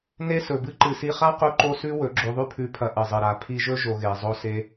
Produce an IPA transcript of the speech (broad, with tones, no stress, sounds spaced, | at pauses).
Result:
n e˦ s ɵ˨ b ɨ˦ ǃ ɨ˨ s i˧ χ a˦ q u˦ ǃ o˦ s ʉ˦ w ɵ˨˦ ɡ͡ǁ o˧ ðˤ ʉ˦ pʰ ʉ˧ pʰ ɐ˧ ʔ ɨ˨ zˤ ɨ˨ ɾ a˨ pʰ i˧ ʒ ɵ˦ ʒ o˧ ɣ e˨ zˤ o˧ s e˧